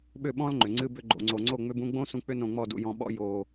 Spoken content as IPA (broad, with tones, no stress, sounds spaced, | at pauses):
ɓ ʏ˦˨ ɓ ɔ̃˦ l ŋ͡ǃ ʏ˨ ŋ͡ǀ ɨ˧ b ʏ˧ ɡ͡ǃ o̰˨ ŋ͡ǀ o˨ ŋ͡ǀ o˦˨ ŋ͡m ʏ˧ b ũ˧ ɡ͡b õ˦ s ũ˧ k͡p ʏ˦ n õ˧ ŋ͡m ɔ˦˨ d ṵ˧ j ɔ̃˧ ɓ ɔ̰˦ j o˧